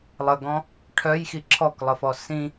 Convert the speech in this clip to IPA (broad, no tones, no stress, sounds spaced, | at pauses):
lˠ ə ɡ ɔ̃ | ʈʰ œ j x i ǁʰ ɔ k lˠ ə f ɔ s ĩ